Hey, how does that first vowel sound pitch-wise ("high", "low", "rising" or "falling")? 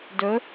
rising